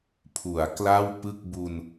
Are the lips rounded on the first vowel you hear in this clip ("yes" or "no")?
yes